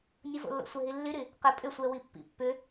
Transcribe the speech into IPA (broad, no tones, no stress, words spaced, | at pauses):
nʲʊvo̰lːo̰sʷɛ ɦilːyɾy | qə pʼʏsʷɛwi pːḭpːʏ